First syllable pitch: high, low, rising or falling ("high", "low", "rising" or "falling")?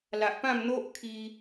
low